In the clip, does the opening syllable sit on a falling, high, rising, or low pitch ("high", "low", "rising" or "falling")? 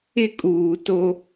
high